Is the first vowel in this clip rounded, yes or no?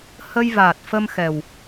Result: no